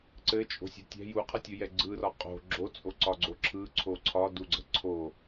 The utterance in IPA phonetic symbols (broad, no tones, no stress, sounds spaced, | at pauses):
ǀ ɘ t͡ʃʼ o̤ sʲ o̤ tʲ ɛ̤ j u qʰ ə tʲ u j ɛ ɡ͡ǀ ɯ r ɒ qʼ o̤ ɡ͡ǁ o t͡sʼ o ǀ ɒ ɡ͡ǀ o ǁʰ ɯ ǀʰ o ǀʰ ɒ d u ɡ͡ǀ ə̤ ǀʰ o